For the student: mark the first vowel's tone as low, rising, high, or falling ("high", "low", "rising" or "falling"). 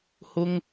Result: high